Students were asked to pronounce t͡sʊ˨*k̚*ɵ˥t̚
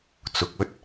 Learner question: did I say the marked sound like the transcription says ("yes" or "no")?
yes